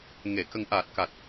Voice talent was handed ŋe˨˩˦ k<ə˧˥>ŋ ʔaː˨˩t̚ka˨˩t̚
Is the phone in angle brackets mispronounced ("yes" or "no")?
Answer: yes